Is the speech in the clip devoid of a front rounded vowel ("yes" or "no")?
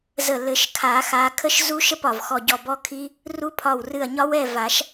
yes